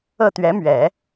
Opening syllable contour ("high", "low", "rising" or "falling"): falling